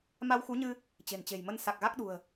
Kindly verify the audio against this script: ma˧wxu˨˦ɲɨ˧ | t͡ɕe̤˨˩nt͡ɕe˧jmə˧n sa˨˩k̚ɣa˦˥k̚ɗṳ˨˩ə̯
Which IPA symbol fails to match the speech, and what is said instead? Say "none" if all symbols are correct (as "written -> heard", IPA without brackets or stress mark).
e˧ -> e̤˨˩